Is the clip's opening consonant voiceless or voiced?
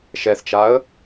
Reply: voiceless